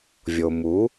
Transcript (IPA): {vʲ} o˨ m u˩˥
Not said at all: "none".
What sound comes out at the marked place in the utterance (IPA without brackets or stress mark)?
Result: vʲ